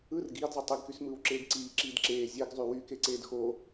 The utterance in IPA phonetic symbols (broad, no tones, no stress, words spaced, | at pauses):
ɯr ɡiːdzˤo tˤiɡkys mɯːwǁeːɡǀiːǁiːd ǁeː zʲeɡzˤy wykeǀeːd xo